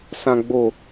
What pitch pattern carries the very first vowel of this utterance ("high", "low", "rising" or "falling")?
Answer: low